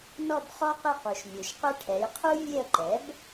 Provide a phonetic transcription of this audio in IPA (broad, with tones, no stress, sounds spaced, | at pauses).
n ɔ˦˨ b χ ɔ˦ q ɪ˦˨ q u˩ ʃ mʲ u˩ ʃ q ʊ˦ ʈʰ ɛ˩˧ j qʰ u˦ vʲ e˦˨ ə̯ ǃ ɛ˩˥ b